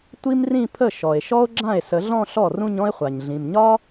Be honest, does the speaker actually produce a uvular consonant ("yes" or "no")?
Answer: yes